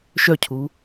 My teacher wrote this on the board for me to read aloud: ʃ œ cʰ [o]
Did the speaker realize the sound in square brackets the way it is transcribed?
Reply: no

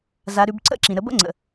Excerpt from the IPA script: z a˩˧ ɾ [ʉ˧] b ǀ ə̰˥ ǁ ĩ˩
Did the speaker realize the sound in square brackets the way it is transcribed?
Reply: no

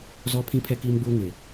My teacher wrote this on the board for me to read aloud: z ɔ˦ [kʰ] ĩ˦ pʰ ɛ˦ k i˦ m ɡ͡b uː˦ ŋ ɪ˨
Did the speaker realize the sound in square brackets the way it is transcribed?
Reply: no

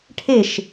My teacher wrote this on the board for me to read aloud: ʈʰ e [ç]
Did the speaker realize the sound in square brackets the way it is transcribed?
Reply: no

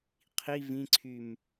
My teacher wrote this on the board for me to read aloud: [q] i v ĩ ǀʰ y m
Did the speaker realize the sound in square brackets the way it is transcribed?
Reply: no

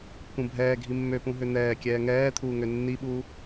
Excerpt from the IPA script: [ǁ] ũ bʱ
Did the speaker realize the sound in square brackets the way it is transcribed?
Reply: no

